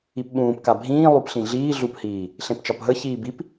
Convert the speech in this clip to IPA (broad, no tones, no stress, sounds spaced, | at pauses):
i p ɓ ũː p k a bʱ ĩː lˠ u p ɬ ĩ ɮ iː ɮ u p h iː | ɬ ẽ p t͡ʃ ɒ p ɦ ə ç iː b i p